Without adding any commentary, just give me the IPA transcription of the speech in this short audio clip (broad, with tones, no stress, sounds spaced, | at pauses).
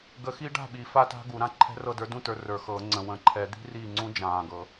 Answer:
ɡ ə˨˥ x i˦˥ ɖ a̤˥˨ ɓ iː˨˥ f a˦˥ t a̤˦˥ ɡ u˨˩˦ ɾ ã˥˨ ǃʰ ɛ̤˦˥ r ɤ˥˨ d ə˞˦˥ d ũ˥˨ t ə˞˨ r ə˞˨ x ɤː˨˩˦ ŋ͡ǀ ə̃˨ w ə̃˨ ǃʰ ɛ˨˩˦ d̪ i̤˦˥ r iː˥˨ ŋ͡ǀ ũ˦˥ d͡ʒ ãː˨ ɡ ɤ˨˩˦